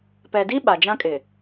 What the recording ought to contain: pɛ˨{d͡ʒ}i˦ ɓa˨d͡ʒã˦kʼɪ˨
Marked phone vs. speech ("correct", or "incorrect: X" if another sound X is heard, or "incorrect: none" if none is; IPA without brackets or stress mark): incorrect: d